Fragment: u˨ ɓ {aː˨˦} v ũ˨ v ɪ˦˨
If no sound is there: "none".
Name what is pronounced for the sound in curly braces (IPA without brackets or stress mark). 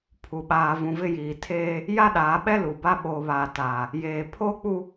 aː˨